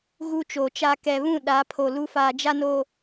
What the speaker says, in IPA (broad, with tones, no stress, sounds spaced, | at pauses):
ɣ u˦ t͡ʃ oː˨ t͡ʃ a˦ k ɛ˨ β ũ˦˨ ɗ a˨˦ pʰ o˨ l u˦ f aː˨ d͡ʒ a˦ n o˨